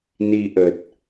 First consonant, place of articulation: alveolar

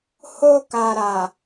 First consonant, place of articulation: glottal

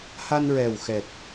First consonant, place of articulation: glottal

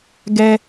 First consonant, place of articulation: velar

